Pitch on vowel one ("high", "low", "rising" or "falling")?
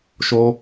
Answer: high